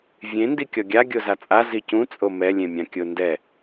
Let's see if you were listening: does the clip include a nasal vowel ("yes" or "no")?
yes